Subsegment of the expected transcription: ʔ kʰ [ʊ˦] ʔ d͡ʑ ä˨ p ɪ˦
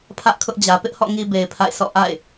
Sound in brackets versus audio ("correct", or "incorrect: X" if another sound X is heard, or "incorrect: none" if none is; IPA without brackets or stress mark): correct